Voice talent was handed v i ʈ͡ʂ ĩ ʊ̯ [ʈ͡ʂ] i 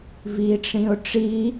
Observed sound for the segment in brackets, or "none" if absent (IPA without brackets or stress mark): ʈ͡ʂ